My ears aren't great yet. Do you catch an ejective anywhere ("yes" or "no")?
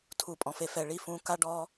yes